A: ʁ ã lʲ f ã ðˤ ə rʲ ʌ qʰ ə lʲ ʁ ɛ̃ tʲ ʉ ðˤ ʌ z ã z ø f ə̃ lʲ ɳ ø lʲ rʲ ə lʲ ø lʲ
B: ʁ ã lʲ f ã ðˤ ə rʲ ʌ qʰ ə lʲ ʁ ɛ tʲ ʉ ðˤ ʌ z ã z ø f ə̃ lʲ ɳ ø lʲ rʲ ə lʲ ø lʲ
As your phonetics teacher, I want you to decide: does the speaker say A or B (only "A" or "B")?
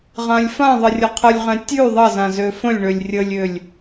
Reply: A